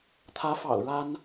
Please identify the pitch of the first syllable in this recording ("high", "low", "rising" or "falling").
rising